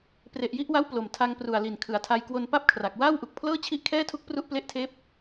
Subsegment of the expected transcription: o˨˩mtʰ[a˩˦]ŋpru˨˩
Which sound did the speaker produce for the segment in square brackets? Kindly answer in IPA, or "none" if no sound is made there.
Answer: a˧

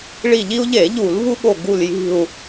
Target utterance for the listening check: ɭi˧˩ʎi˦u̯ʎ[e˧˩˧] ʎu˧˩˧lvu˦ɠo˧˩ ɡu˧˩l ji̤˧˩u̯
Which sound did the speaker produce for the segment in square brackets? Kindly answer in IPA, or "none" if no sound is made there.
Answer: e˧˩˧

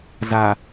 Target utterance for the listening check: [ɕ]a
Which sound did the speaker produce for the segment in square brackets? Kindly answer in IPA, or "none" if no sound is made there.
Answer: z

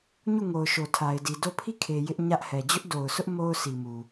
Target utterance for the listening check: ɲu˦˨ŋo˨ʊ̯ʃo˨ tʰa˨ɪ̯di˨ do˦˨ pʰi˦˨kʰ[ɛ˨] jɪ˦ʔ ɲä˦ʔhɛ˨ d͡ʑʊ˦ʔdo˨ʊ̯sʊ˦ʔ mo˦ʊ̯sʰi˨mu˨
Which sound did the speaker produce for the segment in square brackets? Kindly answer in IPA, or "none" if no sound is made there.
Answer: e˨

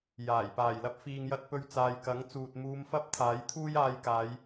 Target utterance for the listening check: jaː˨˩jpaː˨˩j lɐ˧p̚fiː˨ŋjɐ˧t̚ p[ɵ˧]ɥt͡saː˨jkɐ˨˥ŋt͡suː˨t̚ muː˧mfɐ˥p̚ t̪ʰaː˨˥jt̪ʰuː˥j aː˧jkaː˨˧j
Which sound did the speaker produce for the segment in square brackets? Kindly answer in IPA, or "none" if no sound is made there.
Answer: ɵ˧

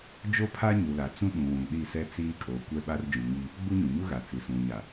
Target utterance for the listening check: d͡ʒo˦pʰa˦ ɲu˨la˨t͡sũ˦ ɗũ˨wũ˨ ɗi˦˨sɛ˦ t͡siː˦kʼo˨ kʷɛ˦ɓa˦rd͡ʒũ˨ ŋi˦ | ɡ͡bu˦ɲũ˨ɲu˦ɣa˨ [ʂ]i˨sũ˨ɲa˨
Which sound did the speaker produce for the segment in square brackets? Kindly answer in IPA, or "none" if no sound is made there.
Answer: t͡s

